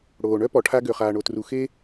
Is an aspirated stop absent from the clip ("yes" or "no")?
no